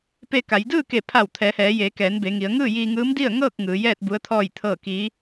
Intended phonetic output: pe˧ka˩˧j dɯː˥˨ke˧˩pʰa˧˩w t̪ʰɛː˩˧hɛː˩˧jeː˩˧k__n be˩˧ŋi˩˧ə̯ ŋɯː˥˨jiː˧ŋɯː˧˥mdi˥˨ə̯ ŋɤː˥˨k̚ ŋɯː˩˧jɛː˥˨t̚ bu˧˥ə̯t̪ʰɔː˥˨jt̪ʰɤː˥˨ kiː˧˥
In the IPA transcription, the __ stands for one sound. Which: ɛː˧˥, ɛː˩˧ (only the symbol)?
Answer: ɛː˩˧